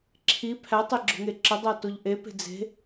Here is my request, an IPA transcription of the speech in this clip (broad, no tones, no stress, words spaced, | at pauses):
ǁʰi pʰætˤe ɡ͡ǁo̤ŋeǁədˤæ toʎʔepe̤ d͡ze̤